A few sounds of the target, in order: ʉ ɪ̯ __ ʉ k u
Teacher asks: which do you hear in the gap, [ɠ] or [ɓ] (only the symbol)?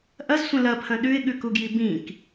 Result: ɠ